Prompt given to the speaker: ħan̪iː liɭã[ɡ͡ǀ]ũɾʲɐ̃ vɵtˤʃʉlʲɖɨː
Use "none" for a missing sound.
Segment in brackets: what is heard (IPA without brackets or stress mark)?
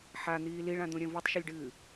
d̪